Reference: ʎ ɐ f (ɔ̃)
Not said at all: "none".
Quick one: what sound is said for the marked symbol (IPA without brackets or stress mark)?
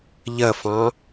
ɑ̃